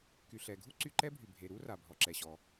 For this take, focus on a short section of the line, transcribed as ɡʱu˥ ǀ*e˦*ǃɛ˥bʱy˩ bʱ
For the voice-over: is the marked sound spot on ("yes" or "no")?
no